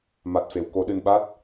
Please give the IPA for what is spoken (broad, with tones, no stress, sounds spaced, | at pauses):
m a˨˩ t̚ f e˨˩˨ w k o˨˩˦ ɗ ɨ˨˩ n ɓ a˦˥ t̚